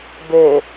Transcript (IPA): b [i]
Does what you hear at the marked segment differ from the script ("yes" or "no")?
yes